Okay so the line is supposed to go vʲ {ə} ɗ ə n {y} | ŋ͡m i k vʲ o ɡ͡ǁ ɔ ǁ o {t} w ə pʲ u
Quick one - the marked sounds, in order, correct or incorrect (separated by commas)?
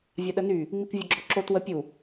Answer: incorrect, correct, correct